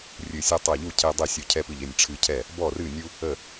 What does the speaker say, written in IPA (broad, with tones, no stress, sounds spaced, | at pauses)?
rʲ ɨ˧˩ sʲ ɔ˦ tˤ ɛ˧˩ ʎ u˥˩ cʰ e˦ dˤ i˥˩ sʲ u˧˩ cʰ ɛ˦ p ɨ˧˩ ʎ e˥˩ nʲ ʈ͡ʂʰ ɨ˦ cʰ ɛ˥˩ | b ɔ˥˩ r ɨ˥˩ nʲ u˦ | ə˧˩